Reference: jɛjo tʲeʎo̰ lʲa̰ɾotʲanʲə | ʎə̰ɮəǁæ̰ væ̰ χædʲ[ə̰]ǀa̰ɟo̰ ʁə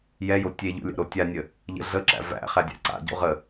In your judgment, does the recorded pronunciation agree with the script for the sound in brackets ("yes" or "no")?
no